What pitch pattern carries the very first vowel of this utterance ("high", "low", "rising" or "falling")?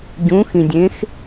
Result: rising